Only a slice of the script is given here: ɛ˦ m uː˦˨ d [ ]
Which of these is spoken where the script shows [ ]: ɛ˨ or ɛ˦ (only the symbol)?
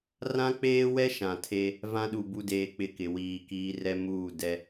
ɛ˦